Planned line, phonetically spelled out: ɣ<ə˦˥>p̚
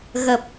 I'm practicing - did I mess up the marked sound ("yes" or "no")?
yes